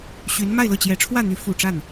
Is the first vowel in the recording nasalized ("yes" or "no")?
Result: no